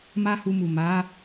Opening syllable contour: high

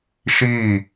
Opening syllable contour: falling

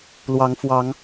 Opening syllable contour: rising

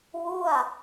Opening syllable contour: falling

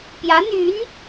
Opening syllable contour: rising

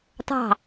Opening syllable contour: falling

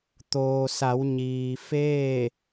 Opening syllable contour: low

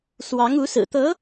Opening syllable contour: rising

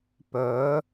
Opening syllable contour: rising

